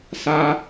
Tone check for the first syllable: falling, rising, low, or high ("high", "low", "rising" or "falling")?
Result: high